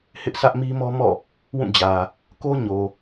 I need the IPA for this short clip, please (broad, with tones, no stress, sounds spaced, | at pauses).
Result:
h ɪ˦ ʔ s ä˦ ʔ m i˦ m ɔ˦ m ɔ̰˦˨ | w ũ˦˨ d͡ʑ ä˨ | k o˦ ɲ o˨